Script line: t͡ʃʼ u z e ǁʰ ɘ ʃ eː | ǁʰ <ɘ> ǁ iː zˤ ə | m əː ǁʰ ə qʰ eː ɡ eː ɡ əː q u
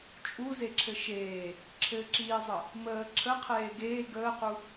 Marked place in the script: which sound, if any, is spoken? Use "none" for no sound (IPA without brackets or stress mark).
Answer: ɘ